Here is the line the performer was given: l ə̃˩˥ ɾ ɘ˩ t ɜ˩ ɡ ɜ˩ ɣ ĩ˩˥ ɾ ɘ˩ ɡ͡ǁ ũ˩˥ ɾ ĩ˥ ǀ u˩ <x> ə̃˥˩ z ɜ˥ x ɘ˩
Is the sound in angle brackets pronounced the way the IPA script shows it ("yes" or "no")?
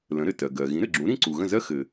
no